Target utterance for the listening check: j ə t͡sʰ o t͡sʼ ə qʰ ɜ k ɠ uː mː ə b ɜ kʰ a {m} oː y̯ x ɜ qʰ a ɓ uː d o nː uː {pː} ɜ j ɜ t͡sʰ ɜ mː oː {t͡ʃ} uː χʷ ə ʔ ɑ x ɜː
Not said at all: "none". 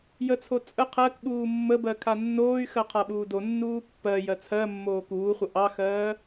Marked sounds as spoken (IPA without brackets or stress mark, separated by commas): nː, pː, k